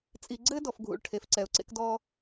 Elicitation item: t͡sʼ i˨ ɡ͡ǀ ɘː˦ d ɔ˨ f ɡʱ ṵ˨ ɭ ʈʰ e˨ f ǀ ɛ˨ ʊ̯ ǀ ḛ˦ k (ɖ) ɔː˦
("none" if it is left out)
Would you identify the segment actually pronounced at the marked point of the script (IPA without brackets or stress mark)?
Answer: d